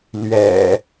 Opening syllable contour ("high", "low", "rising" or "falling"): low